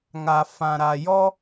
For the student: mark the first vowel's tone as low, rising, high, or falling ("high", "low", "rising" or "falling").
low